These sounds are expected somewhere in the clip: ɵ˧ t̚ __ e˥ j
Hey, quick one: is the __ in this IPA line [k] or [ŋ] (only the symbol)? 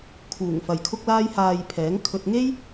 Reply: ŋ